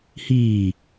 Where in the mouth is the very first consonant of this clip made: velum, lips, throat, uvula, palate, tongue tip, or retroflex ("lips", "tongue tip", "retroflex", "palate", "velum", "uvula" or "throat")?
throat